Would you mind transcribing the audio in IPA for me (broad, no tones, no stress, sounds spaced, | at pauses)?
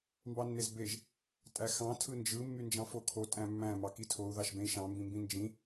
m b ɑ nː e z b e ʒ | tʼ æ x ɑ̃ tʰ ɯ n d͡ʒ ɯ mː y n d͡ʒ ɑ̃ f o kʰ o tʼ æ̃ mː æ̃ m ɑ k i tʰ o u̯ ð ɑ ʃ b ẽ i̯ ʃ ɑ̃ m b ĩ m b ĩ n d͡ʒ ĩ